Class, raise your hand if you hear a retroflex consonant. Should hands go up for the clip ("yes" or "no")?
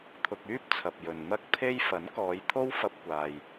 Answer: no